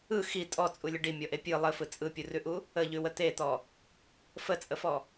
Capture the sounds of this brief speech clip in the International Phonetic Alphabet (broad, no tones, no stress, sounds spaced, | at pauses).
ɯ x i tʼ ɔ t͡sʼ u lʲ ə ɖ i mʲ ɔ ʔ e pʲ ɯ lˠ ə f ɯ t͡sʼ ɯ pʲ u r ʉ ʔ u | ə ʎ ʉ w ə t̪ e t̪ ɔ | f ə t͡sʼ ə f ɔ